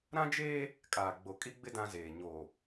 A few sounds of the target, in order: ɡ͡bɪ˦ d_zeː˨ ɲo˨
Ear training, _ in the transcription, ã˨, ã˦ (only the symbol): ã˦